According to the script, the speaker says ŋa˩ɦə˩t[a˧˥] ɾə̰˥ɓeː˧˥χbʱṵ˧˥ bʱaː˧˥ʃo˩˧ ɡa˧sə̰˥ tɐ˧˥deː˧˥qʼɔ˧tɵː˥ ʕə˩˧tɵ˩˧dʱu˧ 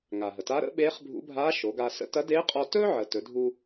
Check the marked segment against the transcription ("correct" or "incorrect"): correct